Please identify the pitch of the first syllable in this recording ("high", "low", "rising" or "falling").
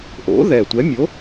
rising